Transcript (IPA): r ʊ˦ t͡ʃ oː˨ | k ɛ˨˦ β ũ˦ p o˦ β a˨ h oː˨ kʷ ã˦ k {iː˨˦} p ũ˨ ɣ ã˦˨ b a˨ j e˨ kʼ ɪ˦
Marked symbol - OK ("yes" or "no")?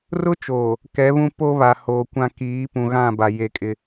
yes